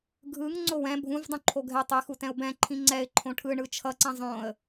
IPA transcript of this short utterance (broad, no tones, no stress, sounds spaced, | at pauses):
ɡʱ ɯ ŋ ŋ͡ǀ o w ɛ̃ bʱ ũ v dˤ ũ ǃʰ o ɡʱ ɛ tˤ i x u t ɛ̃ ʊ̯ b ɛ̃ ǃʰ ĩ ŋ͡ǀ ɛ ɪ̯ ǃʰ õ ʈʰ ɯ ɳ ɯ t͡ʃʰ ʌ ǀ ĩ zˤ õ ə̯